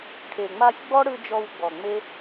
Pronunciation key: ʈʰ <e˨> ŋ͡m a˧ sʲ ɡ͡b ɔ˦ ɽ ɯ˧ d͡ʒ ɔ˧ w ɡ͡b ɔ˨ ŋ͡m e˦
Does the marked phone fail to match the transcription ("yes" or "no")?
no